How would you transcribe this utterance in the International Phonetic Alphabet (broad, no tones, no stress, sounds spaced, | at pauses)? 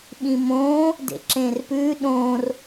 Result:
ɓ ĩ m õː | d ḛ ǁ ẽː r p ʉː ɗ õː r